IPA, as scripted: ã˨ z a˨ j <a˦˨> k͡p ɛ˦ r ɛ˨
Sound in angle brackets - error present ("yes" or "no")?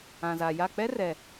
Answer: no